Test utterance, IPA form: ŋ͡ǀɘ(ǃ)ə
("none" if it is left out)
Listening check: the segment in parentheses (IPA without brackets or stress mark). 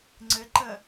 ǃ